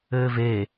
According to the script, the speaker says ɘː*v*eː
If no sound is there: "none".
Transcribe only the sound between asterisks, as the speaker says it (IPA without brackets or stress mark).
v